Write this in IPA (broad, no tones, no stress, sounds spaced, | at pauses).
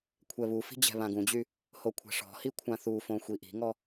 kʷʰ ɛ β u f i̤ d͡ʑ ɛ̤ β ã ɡ ũ d͡ʑ y | h o kʷʰ ɛ̤ ʂ ɔ̤ h i kʷʰ ã θ u f õ xʷ i ʔ i̤ ŋ ɔ